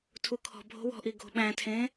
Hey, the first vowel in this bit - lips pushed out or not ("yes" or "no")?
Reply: yes